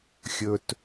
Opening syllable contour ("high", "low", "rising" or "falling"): low